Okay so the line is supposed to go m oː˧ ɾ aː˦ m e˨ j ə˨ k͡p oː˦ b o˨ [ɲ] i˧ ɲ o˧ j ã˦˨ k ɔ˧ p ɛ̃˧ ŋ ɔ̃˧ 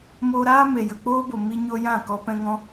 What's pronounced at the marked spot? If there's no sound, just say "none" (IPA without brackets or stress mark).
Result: m